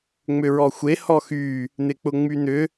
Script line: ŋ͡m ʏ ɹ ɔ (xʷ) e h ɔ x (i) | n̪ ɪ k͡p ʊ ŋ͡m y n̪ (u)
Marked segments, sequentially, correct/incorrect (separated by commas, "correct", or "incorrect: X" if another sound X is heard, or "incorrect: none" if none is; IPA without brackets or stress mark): correct, incorrect: y, incorrect: ʏ